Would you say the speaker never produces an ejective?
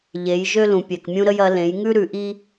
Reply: yes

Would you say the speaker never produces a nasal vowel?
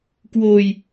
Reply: yes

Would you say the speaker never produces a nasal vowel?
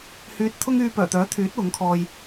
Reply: yes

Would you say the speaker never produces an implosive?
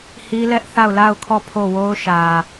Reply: yes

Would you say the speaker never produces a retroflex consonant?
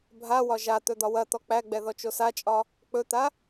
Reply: yes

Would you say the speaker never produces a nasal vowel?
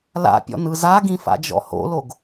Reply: no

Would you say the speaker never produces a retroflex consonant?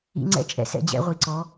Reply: yes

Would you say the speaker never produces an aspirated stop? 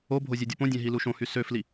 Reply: yes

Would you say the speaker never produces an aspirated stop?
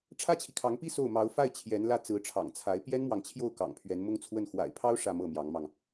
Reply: no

